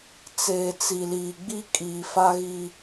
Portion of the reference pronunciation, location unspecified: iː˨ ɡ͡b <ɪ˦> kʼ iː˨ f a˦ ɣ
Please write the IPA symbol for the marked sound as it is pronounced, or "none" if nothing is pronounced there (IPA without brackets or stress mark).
i˦